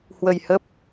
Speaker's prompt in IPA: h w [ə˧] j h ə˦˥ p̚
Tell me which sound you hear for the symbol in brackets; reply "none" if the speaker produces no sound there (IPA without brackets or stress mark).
ə˧